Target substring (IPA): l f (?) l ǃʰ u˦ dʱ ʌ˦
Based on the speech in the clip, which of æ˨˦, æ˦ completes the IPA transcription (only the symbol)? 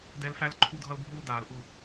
æ˦